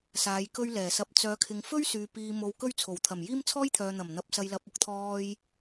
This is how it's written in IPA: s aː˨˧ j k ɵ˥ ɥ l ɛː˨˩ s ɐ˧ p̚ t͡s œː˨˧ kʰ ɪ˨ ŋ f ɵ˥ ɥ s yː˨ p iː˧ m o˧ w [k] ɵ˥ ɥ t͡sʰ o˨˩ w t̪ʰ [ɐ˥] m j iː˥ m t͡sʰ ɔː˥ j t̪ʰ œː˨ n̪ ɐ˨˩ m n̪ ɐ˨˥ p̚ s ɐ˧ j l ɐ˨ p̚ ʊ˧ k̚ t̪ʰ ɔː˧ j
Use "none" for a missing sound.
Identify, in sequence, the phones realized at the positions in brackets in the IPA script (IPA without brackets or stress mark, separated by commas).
k, ɐ˨˩